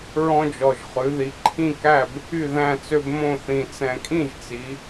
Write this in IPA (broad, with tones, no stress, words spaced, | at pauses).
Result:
ɹɔ̃˦d͡ʒɔ˨˩ʒ χʉ˩˧ði˩˧ǃʰĩ˥˨kæ˥˨b | y˥˨ðæ̃˥˨t͡sø˦b mõ˥˨θĩ˨˩ t͡sɛ̃˨˩kʼĩ˥˨ʒt͡si˩˧